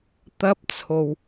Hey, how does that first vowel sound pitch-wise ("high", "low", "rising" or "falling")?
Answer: high